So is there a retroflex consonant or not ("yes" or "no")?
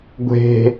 no